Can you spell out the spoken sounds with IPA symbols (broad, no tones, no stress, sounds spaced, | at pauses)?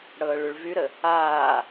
ɽ ɤː ɭ y ɭ v y ɾ ə | aː